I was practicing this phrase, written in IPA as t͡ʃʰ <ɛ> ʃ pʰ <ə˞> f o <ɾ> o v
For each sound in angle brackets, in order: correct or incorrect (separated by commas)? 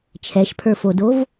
correct, correct, incorrect